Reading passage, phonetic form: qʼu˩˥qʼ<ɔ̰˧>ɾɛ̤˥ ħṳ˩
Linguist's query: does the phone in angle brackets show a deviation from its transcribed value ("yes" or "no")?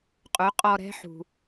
yes